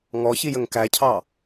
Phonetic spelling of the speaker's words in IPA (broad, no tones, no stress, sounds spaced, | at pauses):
ŋ ɔ ç i j ə ŋ k æ cʰ ɑ